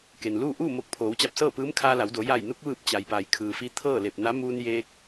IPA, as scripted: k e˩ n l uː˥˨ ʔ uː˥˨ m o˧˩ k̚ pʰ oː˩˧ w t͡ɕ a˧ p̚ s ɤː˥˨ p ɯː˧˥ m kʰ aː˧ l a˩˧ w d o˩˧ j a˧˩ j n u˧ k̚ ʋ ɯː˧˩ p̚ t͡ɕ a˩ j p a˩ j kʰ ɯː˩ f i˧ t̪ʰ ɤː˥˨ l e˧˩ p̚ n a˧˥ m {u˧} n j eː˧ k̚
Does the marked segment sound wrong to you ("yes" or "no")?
yes